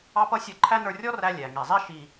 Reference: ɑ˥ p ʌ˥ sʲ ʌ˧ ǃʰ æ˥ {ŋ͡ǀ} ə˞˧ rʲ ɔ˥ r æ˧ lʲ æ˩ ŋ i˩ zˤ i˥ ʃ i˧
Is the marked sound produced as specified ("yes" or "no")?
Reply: no